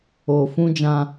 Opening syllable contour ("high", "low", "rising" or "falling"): low